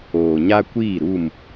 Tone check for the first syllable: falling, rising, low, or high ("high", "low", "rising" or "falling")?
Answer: low